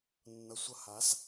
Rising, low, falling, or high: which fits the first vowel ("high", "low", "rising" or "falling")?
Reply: low